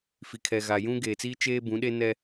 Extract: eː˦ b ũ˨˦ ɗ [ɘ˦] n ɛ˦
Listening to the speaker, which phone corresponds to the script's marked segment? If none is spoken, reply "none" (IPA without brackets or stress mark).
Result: e˦